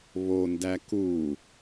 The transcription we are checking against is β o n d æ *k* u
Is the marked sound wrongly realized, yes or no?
no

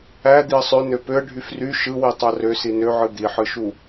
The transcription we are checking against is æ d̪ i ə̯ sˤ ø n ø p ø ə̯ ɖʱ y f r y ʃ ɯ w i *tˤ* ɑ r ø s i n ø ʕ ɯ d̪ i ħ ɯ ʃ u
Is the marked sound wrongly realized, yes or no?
no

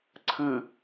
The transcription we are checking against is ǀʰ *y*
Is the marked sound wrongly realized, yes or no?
yes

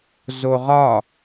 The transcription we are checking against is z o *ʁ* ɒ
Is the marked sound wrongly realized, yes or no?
no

